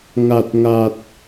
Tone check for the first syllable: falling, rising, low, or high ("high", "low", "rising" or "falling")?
low